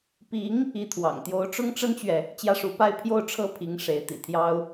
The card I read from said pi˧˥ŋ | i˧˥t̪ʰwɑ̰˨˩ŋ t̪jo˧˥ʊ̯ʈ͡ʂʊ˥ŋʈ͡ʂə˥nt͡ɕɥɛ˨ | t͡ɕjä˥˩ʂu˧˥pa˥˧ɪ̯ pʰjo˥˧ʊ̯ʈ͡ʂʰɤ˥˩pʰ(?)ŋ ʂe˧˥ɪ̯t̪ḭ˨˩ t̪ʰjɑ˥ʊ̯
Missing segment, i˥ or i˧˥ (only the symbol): i˧˥